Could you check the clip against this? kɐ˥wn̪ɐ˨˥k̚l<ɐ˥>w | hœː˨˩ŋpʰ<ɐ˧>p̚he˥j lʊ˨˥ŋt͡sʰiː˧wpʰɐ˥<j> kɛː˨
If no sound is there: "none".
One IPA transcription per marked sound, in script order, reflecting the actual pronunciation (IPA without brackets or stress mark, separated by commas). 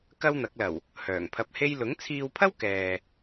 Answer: ɐ˨˩, ɐ˧, w